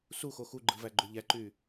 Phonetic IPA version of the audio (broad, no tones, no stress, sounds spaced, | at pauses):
s u x o x u ɡ͡ǃ ɯ v æ ɡ͡ǃ o ʎ æ ǃ y